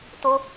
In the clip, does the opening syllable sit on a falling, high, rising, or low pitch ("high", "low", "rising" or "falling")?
high